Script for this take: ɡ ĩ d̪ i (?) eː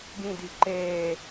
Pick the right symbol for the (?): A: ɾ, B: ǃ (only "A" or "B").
B